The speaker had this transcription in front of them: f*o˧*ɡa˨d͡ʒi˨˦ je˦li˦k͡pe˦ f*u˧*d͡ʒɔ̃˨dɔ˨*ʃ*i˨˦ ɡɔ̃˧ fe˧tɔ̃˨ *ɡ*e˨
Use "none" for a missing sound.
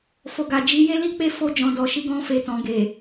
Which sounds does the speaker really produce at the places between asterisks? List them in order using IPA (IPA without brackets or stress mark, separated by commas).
o˨, o˧, ʃ, ɡ